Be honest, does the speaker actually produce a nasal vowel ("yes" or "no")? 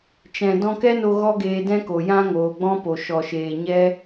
yes